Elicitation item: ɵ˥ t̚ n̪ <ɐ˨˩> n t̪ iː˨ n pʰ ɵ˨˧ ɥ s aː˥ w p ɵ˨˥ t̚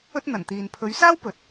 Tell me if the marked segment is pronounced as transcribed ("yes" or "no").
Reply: yes